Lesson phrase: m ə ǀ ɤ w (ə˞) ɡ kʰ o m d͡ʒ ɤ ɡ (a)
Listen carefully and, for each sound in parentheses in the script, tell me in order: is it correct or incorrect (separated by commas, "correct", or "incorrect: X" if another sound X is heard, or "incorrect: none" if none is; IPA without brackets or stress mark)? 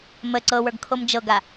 correct, correct